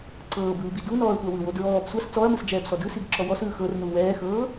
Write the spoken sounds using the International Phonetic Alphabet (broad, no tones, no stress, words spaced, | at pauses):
ǀɤːbɯːbi dunɔːɐ̯tʷa wɯwo dɹɔːb sʷas t͡sɔɐ̯mɯsd͡ʒɛːbsɔ dɯsiɡǁɔ wɔsɯː xɤrnu wɛːxɤː